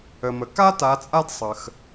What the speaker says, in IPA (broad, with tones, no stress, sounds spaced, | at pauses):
ə˨ m ə˨ k a˥ t a˨˦ t͡sʼ a˥ d sˤ ə˨ x